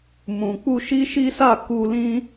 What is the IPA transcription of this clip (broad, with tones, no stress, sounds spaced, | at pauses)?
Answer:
m ũ˨ k͡p u˧ ʃ i˦ ʃ i˦ s a˦˨ k u˧ l ĩ˦